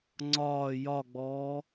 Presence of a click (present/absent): present